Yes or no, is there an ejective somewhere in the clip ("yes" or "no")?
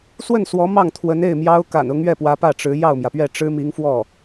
no